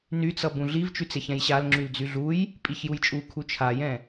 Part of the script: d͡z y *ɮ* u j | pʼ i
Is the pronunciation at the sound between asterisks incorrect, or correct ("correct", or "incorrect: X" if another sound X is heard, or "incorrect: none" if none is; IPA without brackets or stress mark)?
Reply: correct